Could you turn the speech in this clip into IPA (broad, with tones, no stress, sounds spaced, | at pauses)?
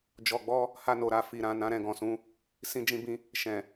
d͡ʒ ɔ˧ ɡ͡b ɔ˦ | h a˧ n o˨ ɾ a˨ f i˨ ɾ ã˨ n ã˨˦ ɾ ɛ̃˧ ɡ ɔ̃˨ s ũ˨˦ | s ĩ˧ d͡ʒ ĩ˧ b ĩ˧ | ʃ ɛ̃˨